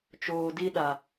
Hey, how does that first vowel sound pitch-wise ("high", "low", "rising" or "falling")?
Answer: low